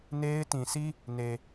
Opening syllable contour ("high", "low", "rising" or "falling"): high